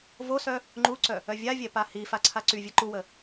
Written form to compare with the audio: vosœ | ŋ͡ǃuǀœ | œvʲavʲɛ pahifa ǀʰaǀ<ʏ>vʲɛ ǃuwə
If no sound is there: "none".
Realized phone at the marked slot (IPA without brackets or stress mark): y